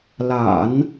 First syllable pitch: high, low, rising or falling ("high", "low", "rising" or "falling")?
low